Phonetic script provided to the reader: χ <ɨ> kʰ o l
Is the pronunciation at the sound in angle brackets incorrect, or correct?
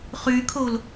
incorrect